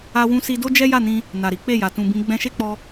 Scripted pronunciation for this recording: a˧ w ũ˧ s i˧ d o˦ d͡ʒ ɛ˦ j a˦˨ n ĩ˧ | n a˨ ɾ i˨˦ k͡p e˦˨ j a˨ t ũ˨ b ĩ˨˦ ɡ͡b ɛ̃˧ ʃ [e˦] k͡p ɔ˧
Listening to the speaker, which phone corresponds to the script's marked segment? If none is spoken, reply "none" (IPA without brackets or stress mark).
e˦